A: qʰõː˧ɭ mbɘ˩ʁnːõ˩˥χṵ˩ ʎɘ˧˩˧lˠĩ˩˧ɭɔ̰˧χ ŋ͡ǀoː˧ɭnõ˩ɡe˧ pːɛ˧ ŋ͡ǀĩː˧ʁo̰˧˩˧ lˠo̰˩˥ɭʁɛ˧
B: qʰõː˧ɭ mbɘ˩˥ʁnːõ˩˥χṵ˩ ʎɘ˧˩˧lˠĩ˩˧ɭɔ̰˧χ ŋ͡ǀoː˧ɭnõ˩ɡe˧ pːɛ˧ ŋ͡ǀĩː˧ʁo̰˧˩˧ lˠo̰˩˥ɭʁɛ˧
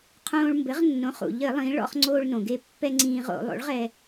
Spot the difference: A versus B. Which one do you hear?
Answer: B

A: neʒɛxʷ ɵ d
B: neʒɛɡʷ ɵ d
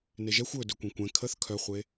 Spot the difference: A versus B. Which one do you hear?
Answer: A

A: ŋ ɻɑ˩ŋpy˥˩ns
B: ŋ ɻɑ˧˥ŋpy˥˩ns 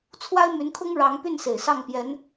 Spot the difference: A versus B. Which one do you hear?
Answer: B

